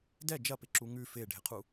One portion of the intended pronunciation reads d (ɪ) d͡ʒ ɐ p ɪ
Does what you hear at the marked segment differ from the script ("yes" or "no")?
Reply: yes